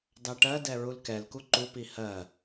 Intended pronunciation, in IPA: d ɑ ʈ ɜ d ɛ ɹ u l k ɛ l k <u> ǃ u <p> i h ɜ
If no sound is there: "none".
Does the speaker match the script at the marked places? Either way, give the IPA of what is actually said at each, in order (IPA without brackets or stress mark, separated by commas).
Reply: u, p